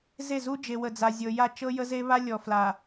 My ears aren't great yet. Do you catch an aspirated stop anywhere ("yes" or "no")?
no